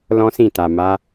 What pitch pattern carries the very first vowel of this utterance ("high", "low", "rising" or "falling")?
high